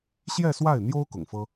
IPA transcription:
ɕjɛ˥˧swa˥˩ɪ̯n̪jo˥ʊ̯ kʊ̰˨˩ŋfɤ˥

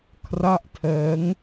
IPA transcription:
kʰra˥˩ʔtʰɛː˦˥ŋ

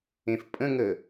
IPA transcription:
ẽfpʼə̃ŋə

